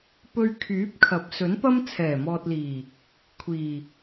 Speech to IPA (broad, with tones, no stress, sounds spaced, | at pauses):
p ɵ˧ ɥ kʰ yː˨˥ p̚ kʰ ɐ˨˥ p̚ s ɵ˨˥ n p ɐ˥ m t͡sʰ ɛː˨˩ m ɔː˨ t̚ l iː˨˩ | kʷʰ iː˨˩